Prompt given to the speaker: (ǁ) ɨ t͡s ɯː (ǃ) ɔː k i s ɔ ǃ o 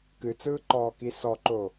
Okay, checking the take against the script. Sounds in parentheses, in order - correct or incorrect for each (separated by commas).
incorrect, correct